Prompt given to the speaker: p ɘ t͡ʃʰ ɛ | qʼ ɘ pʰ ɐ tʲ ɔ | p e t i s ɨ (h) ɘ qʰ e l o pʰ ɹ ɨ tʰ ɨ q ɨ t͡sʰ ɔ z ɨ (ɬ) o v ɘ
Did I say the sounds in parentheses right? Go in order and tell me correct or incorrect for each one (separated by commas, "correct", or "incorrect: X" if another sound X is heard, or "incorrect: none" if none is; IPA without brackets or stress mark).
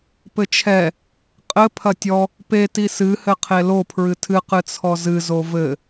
correct, incorrect: z